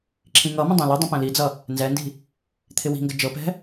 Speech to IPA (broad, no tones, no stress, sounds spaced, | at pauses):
ǁʰ ĩ ŋ ʌ m ə̃ dˤ ɛ̃ l ə dˤ ə̃ p ɛ̃ l i d͡z ʌ | n z ɛ n d i̤ | t̪ʰ ɪ w i̤ ŋ ɡ ə d͡ʒ ɤ p ɛ̤